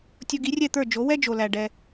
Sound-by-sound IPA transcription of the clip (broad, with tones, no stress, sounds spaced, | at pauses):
tʲ o˧ ɡ i˩˥ rʲ ɛ˥˩ t̪ ə˞˥˩ d͡ʒ o˩˥ w ɛ˥ d͡ʒ o˩ l æ˩ ɖ ɛ˩